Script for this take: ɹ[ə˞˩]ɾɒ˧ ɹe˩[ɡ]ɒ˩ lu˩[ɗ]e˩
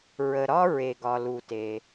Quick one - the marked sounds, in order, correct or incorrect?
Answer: incorrect, correct, incorrect

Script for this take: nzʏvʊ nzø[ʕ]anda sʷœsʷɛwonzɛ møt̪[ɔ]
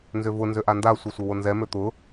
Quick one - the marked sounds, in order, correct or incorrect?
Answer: incorrect, incorrect

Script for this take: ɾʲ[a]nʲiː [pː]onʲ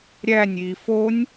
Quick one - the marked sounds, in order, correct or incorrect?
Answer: incorrect, incorrect

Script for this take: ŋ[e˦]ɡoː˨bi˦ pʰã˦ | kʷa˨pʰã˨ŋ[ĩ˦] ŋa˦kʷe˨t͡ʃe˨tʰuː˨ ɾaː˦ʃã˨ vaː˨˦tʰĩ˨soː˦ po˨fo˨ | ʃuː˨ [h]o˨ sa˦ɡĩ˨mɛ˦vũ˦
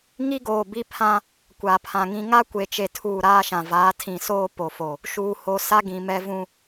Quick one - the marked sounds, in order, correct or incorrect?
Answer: incorrect, correct, correct

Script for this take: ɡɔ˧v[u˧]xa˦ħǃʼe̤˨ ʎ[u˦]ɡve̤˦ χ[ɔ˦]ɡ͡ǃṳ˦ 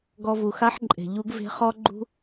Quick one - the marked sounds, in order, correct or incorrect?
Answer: incorrect, correct, correct

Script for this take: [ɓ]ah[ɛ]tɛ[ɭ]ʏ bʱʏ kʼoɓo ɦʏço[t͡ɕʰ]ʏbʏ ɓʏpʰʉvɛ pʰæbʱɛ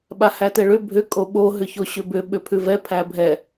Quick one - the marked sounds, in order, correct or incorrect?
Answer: correct, incorrect, correct, incorrect

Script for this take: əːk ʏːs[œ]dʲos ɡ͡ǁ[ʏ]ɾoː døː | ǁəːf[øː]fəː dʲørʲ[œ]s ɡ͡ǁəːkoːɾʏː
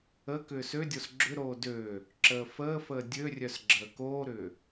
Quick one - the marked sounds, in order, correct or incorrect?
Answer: incorrect, correct, incorrect, correct

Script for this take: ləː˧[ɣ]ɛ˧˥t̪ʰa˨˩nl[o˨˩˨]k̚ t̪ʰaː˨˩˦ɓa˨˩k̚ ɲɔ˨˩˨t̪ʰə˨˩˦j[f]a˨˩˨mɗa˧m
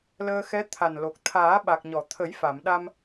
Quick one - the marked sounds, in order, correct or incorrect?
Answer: incorrect, incorrect, correct

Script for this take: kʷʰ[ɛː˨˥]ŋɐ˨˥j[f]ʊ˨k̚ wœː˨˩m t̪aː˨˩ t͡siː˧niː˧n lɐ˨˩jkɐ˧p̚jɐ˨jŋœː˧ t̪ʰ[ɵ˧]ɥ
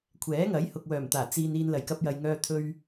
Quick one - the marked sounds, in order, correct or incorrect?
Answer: correct, incorrect, correct

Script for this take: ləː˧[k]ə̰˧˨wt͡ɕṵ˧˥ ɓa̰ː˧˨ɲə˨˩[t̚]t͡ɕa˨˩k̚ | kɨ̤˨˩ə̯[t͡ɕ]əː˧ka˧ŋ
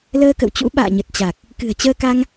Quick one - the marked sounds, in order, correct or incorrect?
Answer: correct, correct, correct

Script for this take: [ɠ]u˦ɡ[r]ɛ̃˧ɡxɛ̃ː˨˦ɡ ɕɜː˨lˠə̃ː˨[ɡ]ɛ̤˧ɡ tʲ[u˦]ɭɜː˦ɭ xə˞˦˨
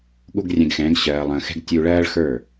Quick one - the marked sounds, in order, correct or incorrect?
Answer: correct, incorrect, incorrect, incorrect

